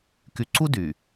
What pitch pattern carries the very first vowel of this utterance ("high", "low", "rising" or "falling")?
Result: low